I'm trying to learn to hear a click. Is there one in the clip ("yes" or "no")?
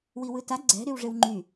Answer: yes